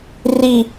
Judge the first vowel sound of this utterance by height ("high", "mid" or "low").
high